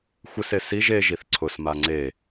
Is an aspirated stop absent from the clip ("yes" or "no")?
no